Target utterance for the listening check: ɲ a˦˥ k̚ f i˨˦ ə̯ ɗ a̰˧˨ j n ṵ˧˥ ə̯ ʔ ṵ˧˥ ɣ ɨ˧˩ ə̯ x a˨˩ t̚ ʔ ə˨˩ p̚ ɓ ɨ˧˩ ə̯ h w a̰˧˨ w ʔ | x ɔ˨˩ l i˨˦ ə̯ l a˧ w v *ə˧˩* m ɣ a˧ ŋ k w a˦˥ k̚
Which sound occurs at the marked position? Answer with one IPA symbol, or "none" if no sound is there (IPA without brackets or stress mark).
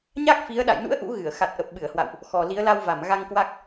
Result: a˧˩